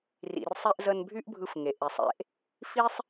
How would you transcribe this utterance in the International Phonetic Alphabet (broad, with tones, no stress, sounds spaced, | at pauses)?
r ḭ˩ r sˤ e˧ ʔ z ə˧ n bʱ y˥ ʔ bʱ ɯ˧ f ŋ e˩ ʔ e˩ sˤ ḛ˧ ʔ | f i˥ sˤ